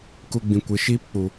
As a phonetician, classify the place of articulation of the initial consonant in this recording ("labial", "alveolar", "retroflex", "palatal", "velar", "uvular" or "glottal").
velar